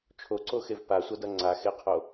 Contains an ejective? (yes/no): no